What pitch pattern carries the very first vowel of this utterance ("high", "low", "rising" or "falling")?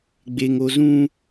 low